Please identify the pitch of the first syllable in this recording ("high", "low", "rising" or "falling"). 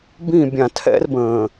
falling